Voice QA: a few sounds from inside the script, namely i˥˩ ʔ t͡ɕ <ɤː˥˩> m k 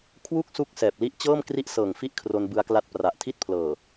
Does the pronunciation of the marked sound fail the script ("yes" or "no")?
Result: no